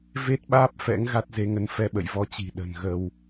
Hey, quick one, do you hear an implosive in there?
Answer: yes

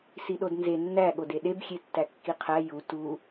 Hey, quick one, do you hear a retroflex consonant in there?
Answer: no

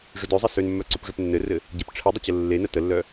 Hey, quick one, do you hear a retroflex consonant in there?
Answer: yes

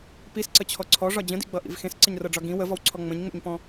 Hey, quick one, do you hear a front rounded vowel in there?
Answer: no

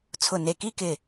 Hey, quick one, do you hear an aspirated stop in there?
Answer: yes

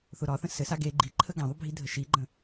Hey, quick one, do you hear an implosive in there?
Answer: no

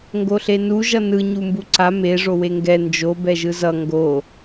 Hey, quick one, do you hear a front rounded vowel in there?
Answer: no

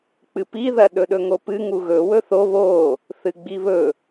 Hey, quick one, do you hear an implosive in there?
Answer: yes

